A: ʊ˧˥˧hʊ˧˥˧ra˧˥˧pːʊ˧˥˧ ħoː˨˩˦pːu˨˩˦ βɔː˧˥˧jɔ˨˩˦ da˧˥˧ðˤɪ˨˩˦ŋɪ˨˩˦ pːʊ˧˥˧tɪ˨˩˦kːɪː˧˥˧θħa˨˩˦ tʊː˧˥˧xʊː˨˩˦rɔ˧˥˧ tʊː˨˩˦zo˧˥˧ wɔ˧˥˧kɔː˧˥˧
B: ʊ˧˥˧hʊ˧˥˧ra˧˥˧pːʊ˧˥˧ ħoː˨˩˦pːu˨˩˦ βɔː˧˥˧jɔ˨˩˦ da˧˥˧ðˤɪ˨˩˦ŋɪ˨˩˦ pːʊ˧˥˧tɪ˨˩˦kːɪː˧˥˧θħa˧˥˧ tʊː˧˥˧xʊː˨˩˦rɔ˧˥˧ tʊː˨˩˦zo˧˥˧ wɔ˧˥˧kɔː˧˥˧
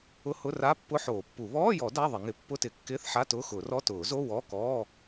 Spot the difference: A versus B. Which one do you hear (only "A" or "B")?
B